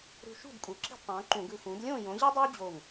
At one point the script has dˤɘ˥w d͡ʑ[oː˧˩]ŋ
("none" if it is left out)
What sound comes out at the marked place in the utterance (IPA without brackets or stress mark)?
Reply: oː˥˩